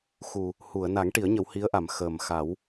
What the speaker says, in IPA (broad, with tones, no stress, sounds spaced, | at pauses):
x u˨˩ | h u˨˩˨ ə̯ n a˨˩˦ ŋ ʈ i˨˩˦ ə̯ ɲ ə˨˩˦ w h i˧˥ ə̯ ʔ a˨˩˨ m x əː˨˩ m x a˨˩˦ w